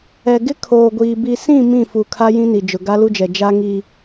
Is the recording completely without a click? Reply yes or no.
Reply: yes